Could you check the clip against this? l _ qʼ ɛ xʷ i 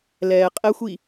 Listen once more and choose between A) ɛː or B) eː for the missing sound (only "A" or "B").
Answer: A